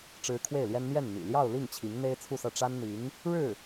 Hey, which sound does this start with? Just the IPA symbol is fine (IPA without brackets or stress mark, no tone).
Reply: ʈ͡ʂ